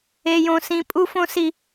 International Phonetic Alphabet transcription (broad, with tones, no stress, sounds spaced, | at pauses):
e˦ j õ˦ s ĩ˦ pʼ u˦ f õ˦ s i˦